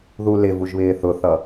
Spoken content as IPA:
ð u l ɪ v u ʒ β ɪː θ ʊ θ ʌ

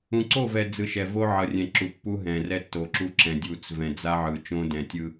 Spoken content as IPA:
ũ˨ ǀ o˦˨ v ɛ˨ d͡z ɯ˨ ʃ ɛ˨ v o˦ ʕ ʌ˨ rʲ ɛ̃˨ ǁ u˨ pː u˦ ɦ ɛ̃˨ r ɛ˦ tː o˨ ǁ u˦ ǁ ɛ̃˨ dʲ u˨ t͡s v ɛ̃˨ d͡z a˦ ʕ ɯ˨ t͡ʃ õ˦ d ɛ̃˨ tʲ ɯ˦

